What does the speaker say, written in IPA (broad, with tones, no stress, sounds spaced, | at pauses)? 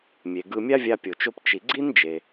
mʲ e˩ ɡ ɯ˧ mʲ a˥ vʲ a˧ pʲ o˩ t͡ʃ o˧ p t͡ʃ i˩ ɡ͡ǀ i˥ n d͡ʒ e˩